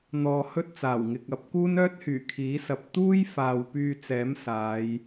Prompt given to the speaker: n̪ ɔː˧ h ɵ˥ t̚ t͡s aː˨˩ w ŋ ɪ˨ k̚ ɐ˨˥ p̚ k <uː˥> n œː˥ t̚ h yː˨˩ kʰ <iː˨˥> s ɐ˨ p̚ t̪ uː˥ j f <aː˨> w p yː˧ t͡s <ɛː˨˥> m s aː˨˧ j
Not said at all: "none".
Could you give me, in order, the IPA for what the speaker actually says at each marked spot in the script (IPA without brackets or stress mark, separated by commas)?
uː˥, iː˨˥, aː˨, ɛː˨˥